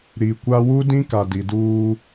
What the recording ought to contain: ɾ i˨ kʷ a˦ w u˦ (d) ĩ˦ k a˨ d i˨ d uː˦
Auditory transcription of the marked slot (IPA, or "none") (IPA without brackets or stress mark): d